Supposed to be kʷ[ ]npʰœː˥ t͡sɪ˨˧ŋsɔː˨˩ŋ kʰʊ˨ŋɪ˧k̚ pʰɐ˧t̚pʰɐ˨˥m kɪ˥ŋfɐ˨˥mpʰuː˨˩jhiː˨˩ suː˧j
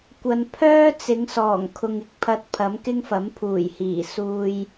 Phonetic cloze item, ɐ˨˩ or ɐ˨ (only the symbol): ɐ˨